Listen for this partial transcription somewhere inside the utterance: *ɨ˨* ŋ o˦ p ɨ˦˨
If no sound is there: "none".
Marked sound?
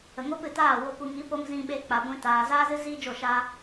ə˨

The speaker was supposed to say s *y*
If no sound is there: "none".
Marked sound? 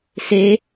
e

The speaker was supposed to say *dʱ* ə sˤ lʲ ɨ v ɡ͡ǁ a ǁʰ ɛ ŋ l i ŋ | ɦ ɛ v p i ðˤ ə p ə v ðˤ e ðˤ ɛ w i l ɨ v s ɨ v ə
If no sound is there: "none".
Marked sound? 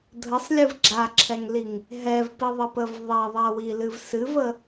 dʱ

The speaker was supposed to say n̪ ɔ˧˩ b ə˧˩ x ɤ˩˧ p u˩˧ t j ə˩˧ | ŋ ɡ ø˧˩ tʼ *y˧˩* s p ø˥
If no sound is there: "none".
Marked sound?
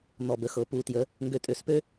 ø˧˩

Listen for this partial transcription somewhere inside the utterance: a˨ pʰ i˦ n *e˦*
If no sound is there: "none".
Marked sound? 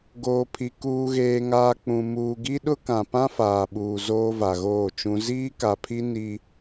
i˦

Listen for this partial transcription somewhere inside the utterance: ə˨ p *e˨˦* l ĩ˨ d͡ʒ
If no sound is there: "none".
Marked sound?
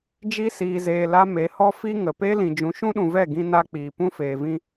e˦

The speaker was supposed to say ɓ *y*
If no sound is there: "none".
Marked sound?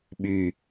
y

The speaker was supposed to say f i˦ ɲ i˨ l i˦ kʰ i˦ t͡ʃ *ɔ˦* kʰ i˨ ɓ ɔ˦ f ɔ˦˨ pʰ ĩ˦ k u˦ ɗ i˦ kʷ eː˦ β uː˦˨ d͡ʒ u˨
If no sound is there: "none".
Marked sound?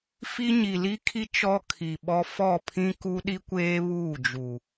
ɔ˦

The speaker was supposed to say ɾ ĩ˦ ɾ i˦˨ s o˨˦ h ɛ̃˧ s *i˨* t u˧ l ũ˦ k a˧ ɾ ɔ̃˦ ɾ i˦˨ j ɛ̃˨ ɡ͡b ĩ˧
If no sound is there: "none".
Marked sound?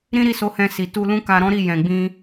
i˨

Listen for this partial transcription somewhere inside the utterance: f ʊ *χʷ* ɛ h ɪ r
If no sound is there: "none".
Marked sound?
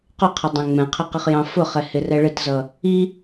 χ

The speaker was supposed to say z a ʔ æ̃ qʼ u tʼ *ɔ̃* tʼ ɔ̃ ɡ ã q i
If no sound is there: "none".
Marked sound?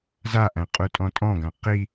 ɔ̃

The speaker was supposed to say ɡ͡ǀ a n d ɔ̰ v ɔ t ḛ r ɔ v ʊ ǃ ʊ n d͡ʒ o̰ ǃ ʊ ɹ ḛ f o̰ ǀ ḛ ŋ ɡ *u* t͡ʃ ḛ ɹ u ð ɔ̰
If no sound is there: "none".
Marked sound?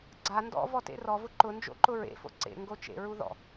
o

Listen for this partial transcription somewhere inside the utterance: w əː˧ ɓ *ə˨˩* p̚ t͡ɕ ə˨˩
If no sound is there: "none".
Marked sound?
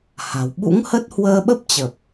ə˦˥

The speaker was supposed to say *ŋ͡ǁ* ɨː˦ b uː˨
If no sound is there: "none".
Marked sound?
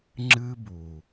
ŋ͡ǁ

